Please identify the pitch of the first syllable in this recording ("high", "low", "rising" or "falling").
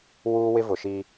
high